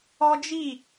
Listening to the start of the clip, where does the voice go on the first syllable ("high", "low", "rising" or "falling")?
high